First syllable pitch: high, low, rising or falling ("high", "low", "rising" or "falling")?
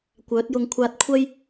rising